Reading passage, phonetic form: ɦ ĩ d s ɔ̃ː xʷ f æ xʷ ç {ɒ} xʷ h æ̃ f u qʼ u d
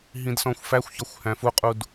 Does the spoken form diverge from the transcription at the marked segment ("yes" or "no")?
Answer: no